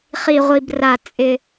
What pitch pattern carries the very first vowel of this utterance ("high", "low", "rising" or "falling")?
low